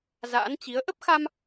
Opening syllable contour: rising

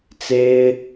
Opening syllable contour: high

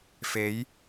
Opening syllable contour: rising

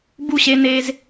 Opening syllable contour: falling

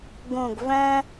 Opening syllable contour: low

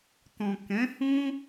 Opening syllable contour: low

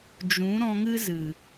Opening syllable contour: rising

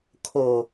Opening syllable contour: low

